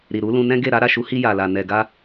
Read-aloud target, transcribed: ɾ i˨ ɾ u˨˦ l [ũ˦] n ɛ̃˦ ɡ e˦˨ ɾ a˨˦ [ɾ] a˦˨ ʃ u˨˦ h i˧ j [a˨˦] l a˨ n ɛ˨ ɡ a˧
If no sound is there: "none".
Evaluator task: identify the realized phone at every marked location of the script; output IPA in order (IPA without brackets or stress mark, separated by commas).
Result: ũ˧, ɾ, a˨